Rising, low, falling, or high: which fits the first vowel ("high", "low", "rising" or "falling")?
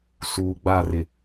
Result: low